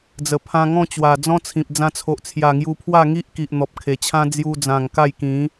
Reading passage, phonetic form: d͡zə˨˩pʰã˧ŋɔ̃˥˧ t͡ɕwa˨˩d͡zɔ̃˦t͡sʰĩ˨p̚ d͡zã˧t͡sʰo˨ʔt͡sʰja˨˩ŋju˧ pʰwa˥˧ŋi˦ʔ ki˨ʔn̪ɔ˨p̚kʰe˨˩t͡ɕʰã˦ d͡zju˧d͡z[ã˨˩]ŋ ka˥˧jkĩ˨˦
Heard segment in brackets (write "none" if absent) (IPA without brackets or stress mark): ã˨˩